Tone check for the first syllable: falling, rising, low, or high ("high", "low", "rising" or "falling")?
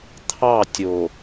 falling